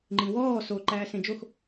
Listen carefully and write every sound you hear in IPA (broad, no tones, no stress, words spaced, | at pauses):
ŋ͡ǃĩwɔː so ǃæːsẽd͡ʒox